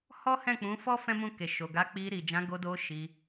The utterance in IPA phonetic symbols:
hɔ˦hɛ̃˦˨k͡pũ˨˦ fɔ˦ fɛ̃˦mũ˦˨ke˨ ʃo˨ɡa˨˦k͡pi˧ ɾi˨d͡ʒã˨˦ ɡo˧do˧ ʃi˧

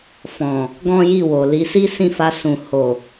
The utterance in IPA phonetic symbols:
fɔ̃˨ | ɡɔ̃˦ji˦˨wo˨ li˨˦si˦sĩ˦˨fa˧ sũ˨ ho˨

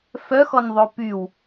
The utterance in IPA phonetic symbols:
fœxɔnðˤo pyw

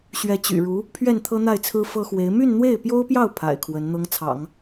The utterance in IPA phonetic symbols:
ɕɥɛ˧˥t͡ɕy̰˨˩ɻu˧˥ | pʰɥɛ˥˩nt̪ʰɤ˥n̪a˥˩ɪ̯t͡sʰɹ̩˥ fɤ˥xwe˧˥ɪ̯ my˥˧nn̪we˥˩ɪ̯pjo˥ʊ̯pjɑ˥˩ʊ̯ pʰa̰˨˩ɪ̯kʰwə˧˥n n̪ɤ˧˥ŋt͡sʰɑ̰˨˩˦ŋ

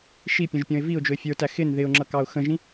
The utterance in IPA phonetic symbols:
ʃipʲə̃ʒpʲɔ̃ɪ̯ viʊ̯d͡ʒʊɪ̯ fʲə˞tæ xɪn ðɪʊ̯ŋ͡ǁʌkɑʊ̯ xə̃ʒĩ

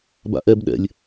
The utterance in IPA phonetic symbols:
ba̰ʔɛb ɗɛ̰lʲ

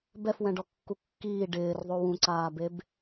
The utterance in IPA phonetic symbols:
bɛfwɛ̃ɖɔkːu kːiː ɖɪːrðˤo wũǀaːbeb

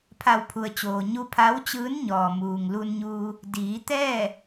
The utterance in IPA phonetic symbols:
pʰa˧˩wpʰu˩ə̯t͡ɕoː˩ ɲu˧pʰa˧˥wt͡ɕɯː˧˥n ɲɔː˩muː˩ŋlu˧nɲuː˧ | diː˩˧t̪ɛː˥˨

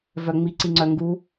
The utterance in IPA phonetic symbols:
vœŋ͡mi ǀiŋ͡ǀœŋɡu

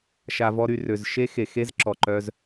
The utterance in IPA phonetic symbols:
ʃa˧vɔ˦ɾy˧ rø˨zʃe˦xe˨xe˦z ǁɔ˨ǃœ˧z

